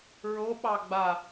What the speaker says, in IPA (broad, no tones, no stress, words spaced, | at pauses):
ɹoɓɑɡ͡ba